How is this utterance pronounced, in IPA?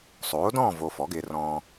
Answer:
sˤ oː˩˥ d ɔ̃ː˥˨ v o˨ f ɔ˩˥ ɡ ɪː˨ r ɔ̃ː˨

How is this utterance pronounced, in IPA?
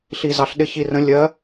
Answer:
ɬ i˧ z ɑ˧ ɬ ɗ ɪ˧˥ ç i˧ r ə̃˧˥ lʲ ɜ˧˥

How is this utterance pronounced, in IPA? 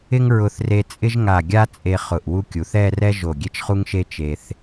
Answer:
ɪ˥ ŋ ɹ ʊ˧ θ r e˧ t͡sʼ ɪ˥ ʒ ŋ a˧˩ ɡʲ a˥ t͡sʼ e˧ χ ʊ˧˩ ʔ w u˥ kʲ u˩˧ θ ɛ˥˧ r ɛ˥ ʒ o˧˩ ɡʲ e˥ t͡ʃ χ u˥ ŋ ʃ e˥ t͡ʃ e˧ θ

